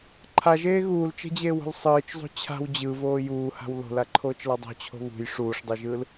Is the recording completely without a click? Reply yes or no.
no